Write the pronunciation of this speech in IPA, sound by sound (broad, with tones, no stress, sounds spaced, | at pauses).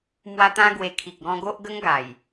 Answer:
m w a˧ t̪ ã˧ ɡ w e˨˩ kʰ i˨ k̚ ɡ ɔ̃˧ ɡ o˦ ʔ ɡ ə˦ ŋ ɡ a˨˩ j